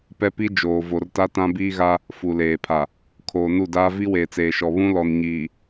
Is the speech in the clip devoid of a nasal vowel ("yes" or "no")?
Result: no